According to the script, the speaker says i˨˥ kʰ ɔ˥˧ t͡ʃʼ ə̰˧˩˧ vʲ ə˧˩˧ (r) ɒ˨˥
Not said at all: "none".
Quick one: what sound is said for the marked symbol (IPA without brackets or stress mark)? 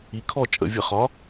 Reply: χ